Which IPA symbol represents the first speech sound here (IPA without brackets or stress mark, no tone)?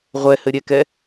ʁʷ